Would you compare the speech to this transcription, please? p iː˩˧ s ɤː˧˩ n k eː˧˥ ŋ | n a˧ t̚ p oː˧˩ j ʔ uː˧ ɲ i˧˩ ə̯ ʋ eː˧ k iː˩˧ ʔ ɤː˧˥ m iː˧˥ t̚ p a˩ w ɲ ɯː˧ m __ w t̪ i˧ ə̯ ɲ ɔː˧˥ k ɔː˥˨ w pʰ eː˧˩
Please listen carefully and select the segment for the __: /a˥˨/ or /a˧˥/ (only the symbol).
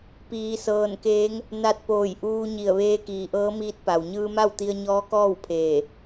a˥˨